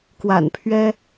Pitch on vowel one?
low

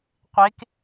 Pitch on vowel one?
rising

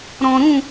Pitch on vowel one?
low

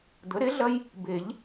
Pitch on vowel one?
rising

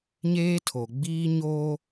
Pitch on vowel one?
high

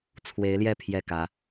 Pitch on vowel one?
rising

